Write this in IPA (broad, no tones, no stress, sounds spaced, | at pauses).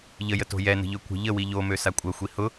ʎ ə j ə t o̤ j ɛ n ə̤ ʎ ø kʷ ə̤ ʎ ə w i ʎ o m ø s a kʷʼ ɐ xʷ i h ʊ